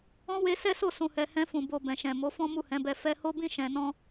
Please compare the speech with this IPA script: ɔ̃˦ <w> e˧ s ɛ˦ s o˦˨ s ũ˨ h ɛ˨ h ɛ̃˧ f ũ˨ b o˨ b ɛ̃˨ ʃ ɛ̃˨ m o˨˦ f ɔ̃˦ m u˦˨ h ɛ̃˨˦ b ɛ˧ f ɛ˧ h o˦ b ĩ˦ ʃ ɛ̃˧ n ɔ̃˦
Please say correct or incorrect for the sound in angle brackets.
correct